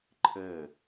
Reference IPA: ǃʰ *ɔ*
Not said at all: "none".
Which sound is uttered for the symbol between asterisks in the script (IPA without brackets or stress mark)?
ə